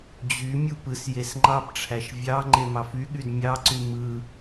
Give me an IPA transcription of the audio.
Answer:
d͡ʑ y mʲ u p ɯ s j e s ŋ͡ǃ ɑ p ʈ͡ʂʰ æ ʃ vʲ ɑ ŋ͡ǃ e m ɑ f y ɠ y d mʲ ɑ ǀ y m ɯ

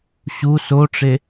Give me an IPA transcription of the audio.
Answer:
ɕ u s o ʈ͡ʂ e

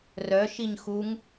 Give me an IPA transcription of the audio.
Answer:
r œ ʃ i ɲ x u ŋ

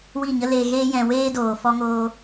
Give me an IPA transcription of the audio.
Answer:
w i˦˨ ɲ ə˦ l eː˧ ɣ eː˦ j ɛ̃˧ w eː˦ d oː˨ f ɔ˦ ŋ oː˦

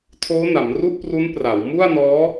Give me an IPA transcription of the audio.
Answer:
tʰ oː˦˥ n a˩˦ m r u˥˩ ʔ p r u˦˥ n p r a˩˦ w m u˥˩ a̯ n ɔː˦˥

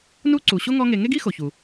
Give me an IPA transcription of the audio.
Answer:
n u˦ ǀ u˩ ɕ o˥ ŋ ɔ˦ ŋ e˨ ŋ e˥ ɡ i˥ x o˩ ç u˩

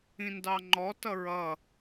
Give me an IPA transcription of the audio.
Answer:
ĩ n d ɑ ŋ͡ǃ ɔ t ʌ ɹ ʌ

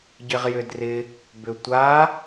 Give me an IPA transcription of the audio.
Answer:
ɟ ɪ ʁ j ʏ d r ɪ | b ʏ tʷ a

